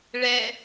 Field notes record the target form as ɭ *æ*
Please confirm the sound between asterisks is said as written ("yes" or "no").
no